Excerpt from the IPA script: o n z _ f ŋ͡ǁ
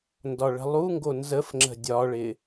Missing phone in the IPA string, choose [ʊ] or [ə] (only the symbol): ə